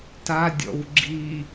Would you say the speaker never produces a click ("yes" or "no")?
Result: no